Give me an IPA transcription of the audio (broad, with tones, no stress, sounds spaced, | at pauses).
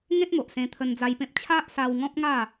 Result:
ŋ ẽ˦ t̚ m o˨ ʔ s ẽ˧ t̪ʰ ə˧ n d͡z a˧ j p ẽ˦ p̚ t͡ɕʰ a˦ ʔ s a˧ w ŋ ɔ̃˦ p̚ ŋ a˥˧